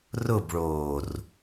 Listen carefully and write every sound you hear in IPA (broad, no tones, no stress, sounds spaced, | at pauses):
r ʊ b ɭ oː r